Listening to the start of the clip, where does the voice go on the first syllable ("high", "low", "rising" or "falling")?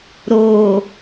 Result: low